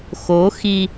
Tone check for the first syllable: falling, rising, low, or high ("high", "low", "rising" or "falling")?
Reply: rising